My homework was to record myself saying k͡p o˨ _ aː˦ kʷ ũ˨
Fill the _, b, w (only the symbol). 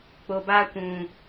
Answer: b